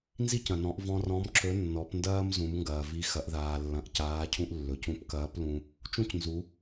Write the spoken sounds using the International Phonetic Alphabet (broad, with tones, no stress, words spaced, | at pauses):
nzi˥cɐ̃˩nɔ̃˩˧ʔ vɔ̃˧rɔ̃˧˥mǁɵ˧˥ nːɔ˩˧pndɐː˥m zũ˩˧mŋɡɐː˩vi˧˥ xɐ˩˧ʔðaː˩lːɐ̃˩˧ʔ caː˧˥cʰũ˥ʔlːɵ˩˧c ũ˧˥pkɐː˧˥plũ˧ | t͡ʃũ˥cnzu˩˧